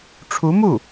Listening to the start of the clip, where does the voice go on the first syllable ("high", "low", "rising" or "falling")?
rising